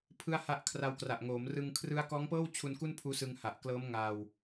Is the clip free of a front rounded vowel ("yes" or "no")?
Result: yes